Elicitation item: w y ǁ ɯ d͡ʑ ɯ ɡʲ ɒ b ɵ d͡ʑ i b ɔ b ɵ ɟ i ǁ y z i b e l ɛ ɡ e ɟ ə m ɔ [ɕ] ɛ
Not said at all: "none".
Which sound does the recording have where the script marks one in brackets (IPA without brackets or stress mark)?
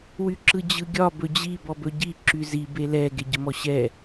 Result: ɕ